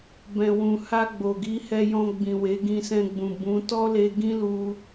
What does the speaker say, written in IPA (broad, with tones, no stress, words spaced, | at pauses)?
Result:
bɛ̃˨wũ˨ha˧ ɡ͡bo˨ɡi˨˦ hɛ˧jɔ̃˧ɡ͡bĩ˨we˨˦ ɡĩ˧sɛ̃˧ɡ͡bũ˨ bũ˨˦ tɔ˦le˧ ɡĩ˦lu˧